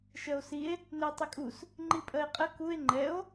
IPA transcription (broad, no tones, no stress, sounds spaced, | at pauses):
ʃ ɜ o̯ s i e̯ | n ɛ e̯ tˤ ʏ kʼ u s | ŋ͡ǃ i pʼ ɜ e̯ qʼ ə k u e̯ ŋ͡ǃ ɛ o̯